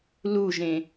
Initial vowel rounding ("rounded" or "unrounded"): rounded